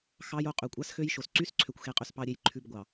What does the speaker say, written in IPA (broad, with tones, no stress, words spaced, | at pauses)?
xɑ˨jo˨ qʼø˨kʷʼɑ˦sxø˦jʃo˨s ǀy˦sǀʰø˨kʷxe˨ qʼø˨spɑ˨ɾʲe˨j ǃʰʉ˨b ɡʷɑ˨